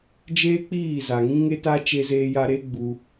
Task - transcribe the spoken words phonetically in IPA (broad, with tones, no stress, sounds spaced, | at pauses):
d͡ʒ eː˦ k͡p iː˦˨ z a˨ ŋ ĩ˦ ŋ e˦ t a˦ t͡ʃ e˧ z eː˧ j a˧ ɾ e˦ ɡ͡b u˧